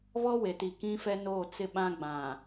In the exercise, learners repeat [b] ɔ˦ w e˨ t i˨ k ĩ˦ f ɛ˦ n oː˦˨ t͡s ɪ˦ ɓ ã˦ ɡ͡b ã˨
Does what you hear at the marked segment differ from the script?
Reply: yes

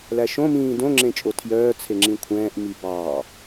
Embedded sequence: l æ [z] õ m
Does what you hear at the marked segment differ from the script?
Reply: yes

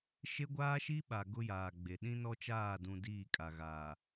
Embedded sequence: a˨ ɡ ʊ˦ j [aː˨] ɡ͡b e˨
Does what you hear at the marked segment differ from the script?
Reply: no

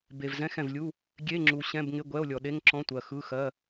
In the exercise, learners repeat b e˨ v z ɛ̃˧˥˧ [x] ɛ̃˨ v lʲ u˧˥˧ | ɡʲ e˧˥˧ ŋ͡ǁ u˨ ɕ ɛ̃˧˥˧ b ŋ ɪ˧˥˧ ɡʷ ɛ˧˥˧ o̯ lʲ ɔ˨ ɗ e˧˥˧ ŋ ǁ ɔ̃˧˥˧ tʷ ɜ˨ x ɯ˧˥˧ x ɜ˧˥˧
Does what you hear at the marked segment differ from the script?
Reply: no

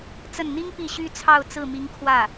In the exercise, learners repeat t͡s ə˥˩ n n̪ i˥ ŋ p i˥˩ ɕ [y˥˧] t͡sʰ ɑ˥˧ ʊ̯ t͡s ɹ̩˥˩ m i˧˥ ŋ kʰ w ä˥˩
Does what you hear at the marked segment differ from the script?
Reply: yes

